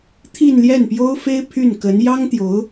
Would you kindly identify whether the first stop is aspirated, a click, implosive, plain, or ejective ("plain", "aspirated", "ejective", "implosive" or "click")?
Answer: aspirated